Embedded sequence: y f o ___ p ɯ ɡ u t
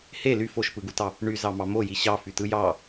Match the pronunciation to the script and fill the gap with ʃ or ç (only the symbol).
ʃ